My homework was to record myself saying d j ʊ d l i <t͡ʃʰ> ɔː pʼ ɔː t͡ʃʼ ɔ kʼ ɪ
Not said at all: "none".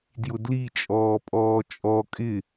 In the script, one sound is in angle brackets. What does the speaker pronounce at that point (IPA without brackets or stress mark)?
t͡ʃʼ